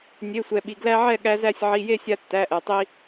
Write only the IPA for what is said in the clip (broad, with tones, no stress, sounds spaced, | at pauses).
nʲ e˩˧˩ sʷ ɛ˩ ɓ i˩ ɡ l æ˦ ʕ ɛ˥˨ ɠ æ˦ z æ˥˨ sʲ ʕ i˩˧˩ j e˥˨ sʲ a˦ tː æ˩˧˩ ʔ ɛ˩ tˤ i˦